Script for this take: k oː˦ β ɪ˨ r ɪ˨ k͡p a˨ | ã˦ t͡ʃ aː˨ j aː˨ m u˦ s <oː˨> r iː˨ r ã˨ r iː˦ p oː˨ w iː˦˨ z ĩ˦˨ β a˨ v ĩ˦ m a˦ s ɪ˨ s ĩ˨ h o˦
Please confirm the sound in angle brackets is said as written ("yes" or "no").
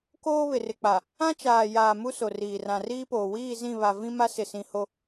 no